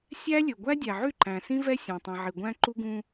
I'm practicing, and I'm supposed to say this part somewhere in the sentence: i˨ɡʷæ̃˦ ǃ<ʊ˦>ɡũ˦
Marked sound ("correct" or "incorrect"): incorrect